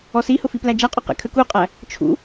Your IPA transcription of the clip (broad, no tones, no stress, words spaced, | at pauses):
ɔsihʊ fiplæd͡ʒæqʼɔ qɛ̰kʰə kuqʼæ | t͡ʃʰṵ